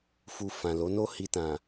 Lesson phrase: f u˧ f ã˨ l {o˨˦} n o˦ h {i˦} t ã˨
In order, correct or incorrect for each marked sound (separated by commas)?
correct, incorrect